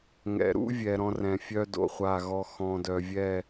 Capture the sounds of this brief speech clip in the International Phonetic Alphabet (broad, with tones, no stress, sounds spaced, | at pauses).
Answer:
ŋ ɛ̰˨ ɾ ṵ˦ vʲ ɛ˨ ɾ ɔ̃˦ r ɛ̃˨ fʲ œ˦ d o̰˨ χʷ a˦˨ ɣ ɔ˦ x ɔ̃˨ d œ˨ vʲ ɛ˦˨